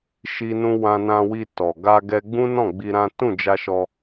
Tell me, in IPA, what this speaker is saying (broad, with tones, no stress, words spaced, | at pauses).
ʃi˦nũ˦ wã˧nã˧wi˧ tɔ˨ ɡa˧ɡɛ˧ɡ͡bũ˦nɔ̃˦˨ ɡ͡bi˧ɾã˦ tũ˦˨d͡ʒa˧ʃɔ˧